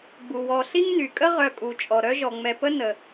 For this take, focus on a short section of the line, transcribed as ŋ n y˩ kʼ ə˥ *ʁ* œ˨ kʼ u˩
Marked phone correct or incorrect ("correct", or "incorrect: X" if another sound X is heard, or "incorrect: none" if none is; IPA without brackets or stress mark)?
correct